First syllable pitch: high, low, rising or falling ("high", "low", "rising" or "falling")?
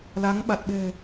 rising